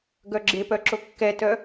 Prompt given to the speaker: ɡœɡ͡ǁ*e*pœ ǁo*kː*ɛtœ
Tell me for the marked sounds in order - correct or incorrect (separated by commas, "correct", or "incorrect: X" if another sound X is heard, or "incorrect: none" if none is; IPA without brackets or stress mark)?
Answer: correct, correct